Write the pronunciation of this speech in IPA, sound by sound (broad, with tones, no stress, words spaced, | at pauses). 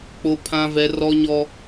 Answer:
k͡po˦ pʰã˦vɛ˦ rɔ˦ɲɔ˦